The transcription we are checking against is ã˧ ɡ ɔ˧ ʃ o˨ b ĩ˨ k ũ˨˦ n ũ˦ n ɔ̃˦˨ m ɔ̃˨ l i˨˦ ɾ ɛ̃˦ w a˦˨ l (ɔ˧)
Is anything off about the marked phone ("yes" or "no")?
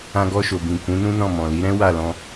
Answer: yes